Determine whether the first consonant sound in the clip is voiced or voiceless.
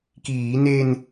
voiceless